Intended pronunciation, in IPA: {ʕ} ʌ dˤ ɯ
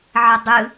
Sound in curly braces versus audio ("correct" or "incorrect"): correct